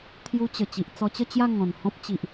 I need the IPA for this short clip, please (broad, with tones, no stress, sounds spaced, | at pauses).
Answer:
t̪ʰ j u˧ t͡ɕ ə˨˩ t͡ɕ i˨ ʔ t͡s ɔ˧ t͡ɕ ə˥˧ t͡ɕ j a˥˧ ŋ ɔ̃˨˩ n h ɔ̃˦ p̚ t͡ɕ i˨ ʔ